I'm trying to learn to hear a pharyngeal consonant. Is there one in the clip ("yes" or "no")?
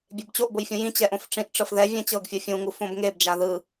no